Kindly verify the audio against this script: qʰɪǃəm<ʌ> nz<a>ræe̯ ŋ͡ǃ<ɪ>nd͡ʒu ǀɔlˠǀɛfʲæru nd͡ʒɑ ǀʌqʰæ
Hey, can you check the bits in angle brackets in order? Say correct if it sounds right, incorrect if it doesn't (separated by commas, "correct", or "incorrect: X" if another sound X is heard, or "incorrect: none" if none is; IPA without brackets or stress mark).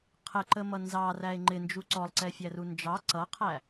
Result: correct, incorrect: ɑ, correct